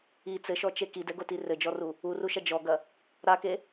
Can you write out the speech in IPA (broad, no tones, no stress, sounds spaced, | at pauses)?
i t͡s ɘ ʃ ɔ t͡ʃ e k i d ɛ ɡ o t i r ɘ d͡ʒ ɔ r u | u r u ʃ ɐ d͡ʒ ɔ ɡ ɐ | ɾ a k e